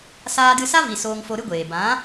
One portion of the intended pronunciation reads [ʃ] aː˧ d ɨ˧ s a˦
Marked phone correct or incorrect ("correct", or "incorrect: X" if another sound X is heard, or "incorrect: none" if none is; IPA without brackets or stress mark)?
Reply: incorrect: s